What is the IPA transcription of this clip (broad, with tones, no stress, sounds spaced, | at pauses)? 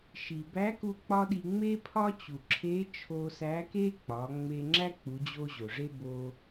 ʃ i˩ b æ˧˥ k u˧ k͡p ɒ˥ ɗ i˧ ŋ͡m e˥ pʰ ɒ˥ t͡ɕ u˩ ǁʰ e˧˥ t͡ʃʰ o˧ s æ˧˥ k e˥ k͡p ɒ˩˧ ŋ͡m e˧ ŋ͡ǁ æ˥ k͡p u˩˧ d͡ʑ o˧ ʑ o˩ ʐ e˥ b o˧